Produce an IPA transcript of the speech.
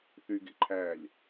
θyɡḛǃʰæːlʲ

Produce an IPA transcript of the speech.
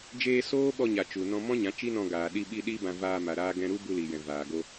d͡ʒeː˧ soː˦ɓɔ˧ɲa˨ t͡ʃu˨ nɔ̃˧mɔ̃˦ɲã˨˦ t͡ʃi˦nɔ̃˧ɡaː˨ ɗi˧ɓi˧ ɗi˦bã˧ vaː˧ ma˨ɾaː˧ ɡɛ̃˧ɾu˦bu˧li˨ jɛ̃˨vaː˨ɡo˧

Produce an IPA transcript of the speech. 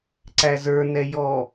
ǀæzə˞nɛ jɔ

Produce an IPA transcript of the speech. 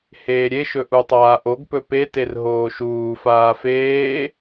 heːɾʲeʃɵ ʔutˤaːʔoɡpɵ peter ɦoːʃuːfaː feː

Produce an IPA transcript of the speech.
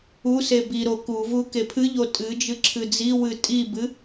use biɾo kuvu kepʰɨʎo tʼɨd͡ʒɨ ǁʰɨd͡ziwɨ tʼibɨ

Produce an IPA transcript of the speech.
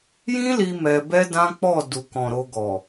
jĩ˦li˧ mɛ˧ bɛ˦dã˦k͡pɔ˦˨ du˨kɔ̃˨ ɾo˧ɡɔ˨

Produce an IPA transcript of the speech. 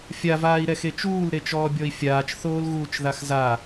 fʲavaːi̯ɾɛxe t͡ʃuːlɾet͡ʃɔːbʲɔi̯ fʲaːt͡ʃθoːlɣuːt͡ʃðax za

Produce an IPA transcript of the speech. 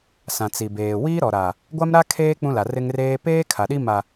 sã˨t͡si˨beː˨ wiː˦ɾɔ˨ɾa˨ | ɡʷa˦mɾa˦ kʰeː˦ k͡pũ˦la˨ rɪ˦ŋreː˦ peː˦ kʰa˨ɗi˦ ma˨

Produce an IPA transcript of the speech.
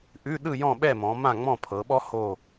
ʔʉ˧˥˧ ɗɯ˥˨jɔ̃˥˨ɓɛ˥˨mɔ̃˩˧ mã˥˨ŋ͡mɔ̃˥˨pʰɤ˩˧ɓɔ˥ ho˥˨

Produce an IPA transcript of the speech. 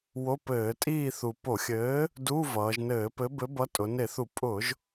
wo˧˥˧pɘː˧˩˧ tʼiː˦˨θu˨˩ po˧˩˧xʲɘː˨˥ | du˧˥˧vʌː˩˧ʒnɘː˧˩˧ pɘ˨˥bɘ˨˥ bʌ˨˥tʼʊ˩˧ne˧˩˧θu˧˩˧ pʼʊ˧˩˧ʒ

